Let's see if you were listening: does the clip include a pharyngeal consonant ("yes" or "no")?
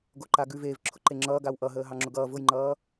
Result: no